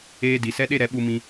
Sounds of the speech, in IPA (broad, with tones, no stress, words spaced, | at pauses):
eː˧di˨ sɛ˧ɗe˧ ɾɛ˨˦ɓu˧mĩ˧